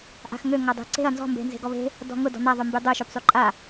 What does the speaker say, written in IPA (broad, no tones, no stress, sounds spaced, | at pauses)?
ʔ a̤ x ŋ ø ŋ a dˤ e̤ ǀ e̤ ɐ̯ n z ɔ̤ m b e̤ n z e̤ ɡ ɔ β e̤ | d ɔ̤ ŋ ʊ d ɔ̤ n̪ a ðˤ ʊ m b y dˤ ø ʃ ø p sˤ y ǃʼ a